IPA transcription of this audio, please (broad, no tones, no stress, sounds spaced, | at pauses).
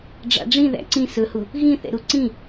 ɖ͡ʐ ɑ̰ ɖ͡ʐ ĩ ð æ̰ ǀ ĩ s ɵ h u | ɣ ĩ θ ɛ̰ ɾ u ǀ ĩ